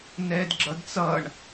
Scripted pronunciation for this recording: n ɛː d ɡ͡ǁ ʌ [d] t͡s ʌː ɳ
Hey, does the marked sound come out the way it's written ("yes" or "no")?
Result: yes